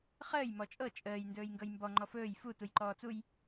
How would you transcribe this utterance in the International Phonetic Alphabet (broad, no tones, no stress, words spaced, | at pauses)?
χəːj mɔt͡ʃʼɤ t͡ʃʼəːj ndɵːjŋɡɤjmbɔ ŋ͡ǃɔfɵːj fu tujǃɔːt͡suj